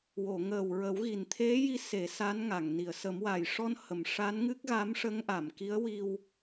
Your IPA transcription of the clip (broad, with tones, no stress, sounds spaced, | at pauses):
w o˨˩˨ ŋ əː˨˩ w ɹ ə˨˩˦ w ɣ i˨˩ n t̪ʰ e˧˥ j i˧˥ s e˨˩˦ s a˧˥ n ŋ a˨˩˨ ŋ n i˨˩˨ ə̯ s ə˨˩˦ m w a˨˩ j ʂ ɔ˧ n h ə˨˩˨ m ʂ a˧˥ n ŋ ɨ˦˥ k̚ ɣ a˧˥ m ʂ ə˧˥ ŋ ʔ a˨˩˨ m k i˧˥ ə̯ w i˧ w